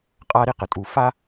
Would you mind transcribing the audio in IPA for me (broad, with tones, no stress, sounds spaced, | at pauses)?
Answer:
qʼ a˦ ɾ i˥ q ə˩ tʼ u˨ f a˥